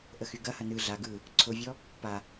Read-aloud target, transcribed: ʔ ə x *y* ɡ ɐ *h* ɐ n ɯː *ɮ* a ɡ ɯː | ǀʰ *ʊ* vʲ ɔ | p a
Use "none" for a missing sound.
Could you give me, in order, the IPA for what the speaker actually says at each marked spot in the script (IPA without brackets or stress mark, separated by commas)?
y, h, ɮ, ʊ